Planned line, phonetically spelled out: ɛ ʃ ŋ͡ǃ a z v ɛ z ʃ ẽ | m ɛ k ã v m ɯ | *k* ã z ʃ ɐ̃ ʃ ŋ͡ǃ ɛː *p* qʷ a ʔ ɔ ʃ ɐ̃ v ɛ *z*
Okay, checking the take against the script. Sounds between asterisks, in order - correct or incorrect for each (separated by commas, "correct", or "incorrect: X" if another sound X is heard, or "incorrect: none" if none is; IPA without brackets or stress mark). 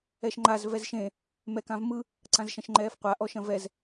incorrect: ǀ, incorrect: f, correct